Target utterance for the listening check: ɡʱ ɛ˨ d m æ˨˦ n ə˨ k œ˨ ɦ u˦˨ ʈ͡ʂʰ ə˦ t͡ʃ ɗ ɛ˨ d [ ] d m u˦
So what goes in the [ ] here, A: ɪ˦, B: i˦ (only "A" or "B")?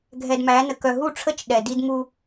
B